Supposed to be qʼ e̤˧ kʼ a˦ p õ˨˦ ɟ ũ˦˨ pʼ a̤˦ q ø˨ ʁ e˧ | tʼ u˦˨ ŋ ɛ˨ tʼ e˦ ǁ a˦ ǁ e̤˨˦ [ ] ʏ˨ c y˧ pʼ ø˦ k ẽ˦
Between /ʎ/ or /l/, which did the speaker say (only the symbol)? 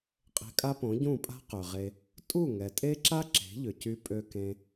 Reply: ʎ